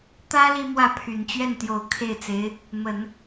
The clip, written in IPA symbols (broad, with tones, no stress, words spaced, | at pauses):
t̪ä˥ li˥mwä˥˩ pʰy˨˩nt͡ɕɥɛ˥˩nt̪jo˨˩ʊ̯ kʰe˥˩ɪ̯t͡se˧˥ɪ̯ | mə˨˩˦n